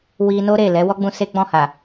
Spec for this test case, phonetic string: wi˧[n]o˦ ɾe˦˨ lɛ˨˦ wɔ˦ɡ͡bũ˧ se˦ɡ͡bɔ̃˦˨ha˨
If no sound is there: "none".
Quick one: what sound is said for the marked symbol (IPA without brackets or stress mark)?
n